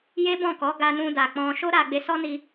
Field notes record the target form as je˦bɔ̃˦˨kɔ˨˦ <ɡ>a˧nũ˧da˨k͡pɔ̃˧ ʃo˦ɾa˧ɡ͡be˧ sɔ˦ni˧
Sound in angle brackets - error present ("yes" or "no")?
no